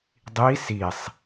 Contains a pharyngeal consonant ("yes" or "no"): no